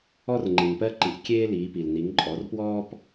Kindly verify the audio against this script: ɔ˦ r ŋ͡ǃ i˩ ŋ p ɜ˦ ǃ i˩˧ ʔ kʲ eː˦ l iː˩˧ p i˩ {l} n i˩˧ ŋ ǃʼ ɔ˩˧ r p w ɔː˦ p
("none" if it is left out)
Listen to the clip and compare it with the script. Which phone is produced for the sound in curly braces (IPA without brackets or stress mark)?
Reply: l